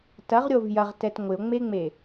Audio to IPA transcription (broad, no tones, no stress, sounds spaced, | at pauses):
t ɐ ʁ ɾʲ o v j ɐ ʁ t ɛ t ŋʷ ɪ o̯ ŋ͡m e ŋ͡m e